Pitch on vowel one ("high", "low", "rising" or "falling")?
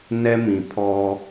high